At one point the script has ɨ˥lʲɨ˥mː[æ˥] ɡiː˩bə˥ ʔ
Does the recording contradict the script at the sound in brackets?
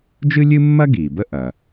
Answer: yes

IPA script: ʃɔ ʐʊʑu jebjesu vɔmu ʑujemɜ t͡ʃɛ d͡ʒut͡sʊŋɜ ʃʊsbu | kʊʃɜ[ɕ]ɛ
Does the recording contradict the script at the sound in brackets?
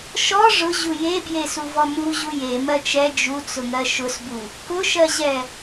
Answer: yes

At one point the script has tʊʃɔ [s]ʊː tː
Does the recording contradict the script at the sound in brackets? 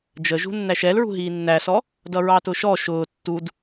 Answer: yes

